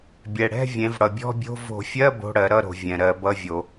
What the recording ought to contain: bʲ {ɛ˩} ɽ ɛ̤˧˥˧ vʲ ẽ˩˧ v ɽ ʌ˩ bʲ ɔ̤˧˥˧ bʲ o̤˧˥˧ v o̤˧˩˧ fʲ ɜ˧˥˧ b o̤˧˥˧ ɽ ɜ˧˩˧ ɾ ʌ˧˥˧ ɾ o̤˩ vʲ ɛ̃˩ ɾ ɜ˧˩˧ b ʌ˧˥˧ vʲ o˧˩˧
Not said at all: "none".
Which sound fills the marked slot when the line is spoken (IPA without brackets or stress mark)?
ɛ˩